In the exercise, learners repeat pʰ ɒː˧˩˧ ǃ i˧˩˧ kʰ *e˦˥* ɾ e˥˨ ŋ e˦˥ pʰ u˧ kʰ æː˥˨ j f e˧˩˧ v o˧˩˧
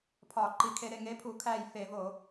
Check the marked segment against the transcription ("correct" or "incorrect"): incorrect